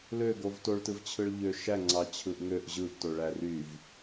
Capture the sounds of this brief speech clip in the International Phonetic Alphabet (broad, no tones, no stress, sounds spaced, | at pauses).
l ø ɡ o v t o ɭ t ɯ v t͡ɕʰ ɯ ɭ ʎ ø ʃ æ ŋ͡ǀ ɑ t͡ɕʰ ɯ ʔ ŋ ø ʔ ʑ ɯ ʔ t o ɭ æ r y v